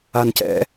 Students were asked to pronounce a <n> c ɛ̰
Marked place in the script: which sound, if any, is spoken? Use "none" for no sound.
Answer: n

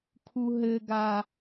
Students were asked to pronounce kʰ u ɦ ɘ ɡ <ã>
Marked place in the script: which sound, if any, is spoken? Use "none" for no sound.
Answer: a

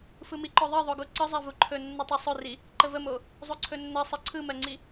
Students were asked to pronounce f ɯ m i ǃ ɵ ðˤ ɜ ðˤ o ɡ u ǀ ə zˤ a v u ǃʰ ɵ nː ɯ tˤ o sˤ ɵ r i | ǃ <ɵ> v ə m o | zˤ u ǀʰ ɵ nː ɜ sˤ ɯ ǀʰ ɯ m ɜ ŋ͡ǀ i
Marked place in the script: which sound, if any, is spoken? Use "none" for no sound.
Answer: ə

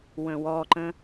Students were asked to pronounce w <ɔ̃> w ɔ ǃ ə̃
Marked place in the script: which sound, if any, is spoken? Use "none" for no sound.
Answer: ə̃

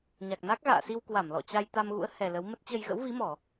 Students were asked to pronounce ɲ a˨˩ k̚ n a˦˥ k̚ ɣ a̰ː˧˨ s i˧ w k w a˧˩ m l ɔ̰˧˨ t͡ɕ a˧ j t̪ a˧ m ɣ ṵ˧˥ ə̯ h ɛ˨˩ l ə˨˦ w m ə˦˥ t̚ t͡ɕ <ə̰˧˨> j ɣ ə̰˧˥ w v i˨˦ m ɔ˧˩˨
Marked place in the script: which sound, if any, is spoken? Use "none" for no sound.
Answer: ə˧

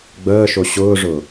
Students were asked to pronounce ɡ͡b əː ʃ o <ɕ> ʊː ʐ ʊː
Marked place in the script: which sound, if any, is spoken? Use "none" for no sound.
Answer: ɕ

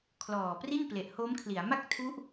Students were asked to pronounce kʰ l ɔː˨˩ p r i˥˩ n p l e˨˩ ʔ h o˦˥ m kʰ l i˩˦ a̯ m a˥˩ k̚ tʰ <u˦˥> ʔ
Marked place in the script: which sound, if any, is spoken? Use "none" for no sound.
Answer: u˦˥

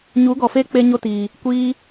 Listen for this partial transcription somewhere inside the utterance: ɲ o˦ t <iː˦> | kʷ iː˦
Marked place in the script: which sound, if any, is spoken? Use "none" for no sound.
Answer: iː˨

